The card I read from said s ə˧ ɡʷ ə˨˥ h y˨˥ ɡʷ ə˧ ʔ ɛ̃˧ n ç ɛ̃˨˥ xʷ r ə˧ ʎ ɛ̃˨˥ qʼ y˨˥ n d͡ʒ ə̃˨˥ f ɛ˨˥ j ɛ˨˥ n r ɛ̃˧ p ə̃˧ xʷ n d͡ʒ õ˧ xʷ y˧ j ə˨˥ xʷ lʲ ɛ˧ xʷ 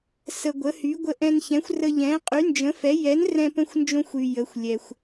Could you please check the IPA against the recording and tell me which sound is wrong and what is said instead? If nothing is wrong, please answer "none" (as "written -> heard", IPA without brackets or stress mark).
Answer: none